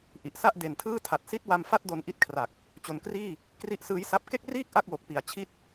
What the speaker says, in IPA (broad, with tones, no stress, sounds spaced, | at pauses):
ʔ i˨˩ ʔ s a˥˩ ʔ d e˨˩ n tʰ ɯː˥˩ tʰ a˨˩ t̚ s i˦˥ t̚ w a˧ m f a˥˩ t̚ d o˧ n ʔ i˦˥ t̚ kʰ r a˨˩ k̚ | t͡ɕ o˨˩ n k r iː˥˩ | k r i˦˥ ʔ s ɯː˦˥ j s a˦˥ p̚ k e˥˩ k̚ r iː˥˩ k̚ ʔ a˥˩ k̚ w o˨˩ k̚ p i˩˦ a̯ t͡ɕʰ i˦˥ t̚